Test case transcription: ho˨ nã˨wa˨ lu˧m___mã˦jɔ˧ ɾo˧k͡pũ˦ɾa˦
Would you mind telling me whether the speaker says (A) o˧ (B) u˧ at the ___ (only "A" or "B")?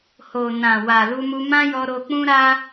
B